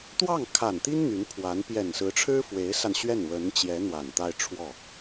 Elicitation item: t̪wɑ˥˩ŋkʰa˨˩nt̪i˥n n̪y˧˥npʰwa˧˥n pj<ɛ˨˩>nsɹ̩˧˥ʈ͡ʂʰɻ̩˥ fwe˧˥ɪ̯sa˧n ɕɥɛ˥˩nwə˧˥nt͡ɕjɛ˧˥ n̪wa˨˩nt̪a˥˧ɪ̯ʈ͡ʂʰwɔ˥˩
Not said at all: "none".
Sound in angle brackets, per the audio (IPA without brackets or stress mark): ɛ˨˩